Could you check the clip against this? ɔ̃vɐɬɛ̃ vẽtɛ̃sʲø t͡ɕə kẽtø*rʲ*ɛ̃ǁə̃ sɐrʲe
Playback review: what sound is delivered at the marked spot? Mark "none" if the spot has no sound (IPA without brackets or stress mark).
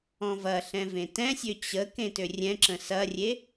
rʲ